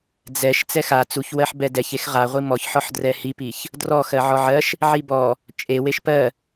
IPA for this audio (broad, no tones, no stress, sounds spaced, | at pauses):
d͡z ɛ ʃ t͡s ɛ x a t͡s u ç w ɜ ħ b ɛ d ɛ ç e x ʁ a ʁʷ i m ɔ ç ħ ɔ ħ d r ɛ h i p i ç | d r ɔ x ɜ ʕ ɔ ʕ ɜ ʃ | ʕ i b ɔ | t͡ʃʼ e w e ʃ p ɜ